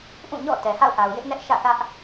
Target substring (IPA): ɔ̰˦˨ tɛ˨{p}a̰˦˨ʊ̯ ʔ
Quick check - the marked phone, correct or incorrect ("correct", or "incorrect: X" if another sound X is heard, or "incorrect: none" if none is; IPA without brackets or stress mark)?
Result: incorrect: h